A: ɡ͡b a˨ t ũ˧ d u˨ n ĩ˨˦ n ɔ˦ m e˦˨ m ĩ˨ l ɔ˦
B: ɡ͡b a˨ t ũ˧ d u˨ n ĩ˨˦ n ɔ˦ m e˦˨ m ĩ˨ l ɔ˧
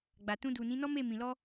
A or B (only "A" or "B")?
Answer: B